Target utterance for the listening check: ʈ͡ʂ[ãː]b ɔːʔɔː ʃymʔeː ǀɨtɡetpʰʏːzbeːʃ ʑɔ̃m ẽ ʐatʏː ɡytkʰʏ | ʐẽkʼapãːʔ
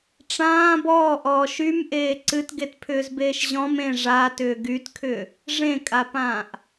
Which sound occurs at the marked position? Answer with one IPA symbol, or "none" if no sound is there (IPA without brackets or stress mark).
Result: ãː